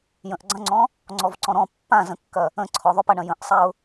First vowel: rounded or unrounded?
unrounded